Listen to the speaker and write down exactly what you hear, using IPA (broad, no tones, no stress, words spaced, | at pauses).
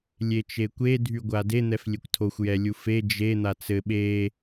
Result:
lʲet͡ʃekʷe dʱyɡʷade n̪ɛflʲekʷtʰoxʷ jɛlʲufe d͡ʒe n̪at͡sɘ ɓe